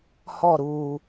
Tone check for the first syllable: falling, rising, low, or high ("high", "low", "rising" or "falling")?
falling